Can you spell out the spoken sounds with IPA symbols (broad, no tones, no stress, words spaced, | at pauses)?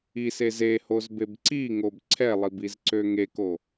isez ehozbeb ǀiŋob ǀʰɛlˠibizǀø ŋeko